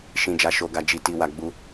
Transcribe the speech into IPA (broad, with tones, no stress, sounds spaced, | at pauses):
ʃ ĩ˨ d͡ʒ a˨ ʃ o˨ ɡ a˨ d͡ʒ i˨ t i˨ w a˨ ɡ͡b u˧